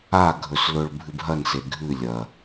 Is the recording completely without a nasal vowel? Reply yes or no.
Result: yes